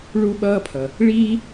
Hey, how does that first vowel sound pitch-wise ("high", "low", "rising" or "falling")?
high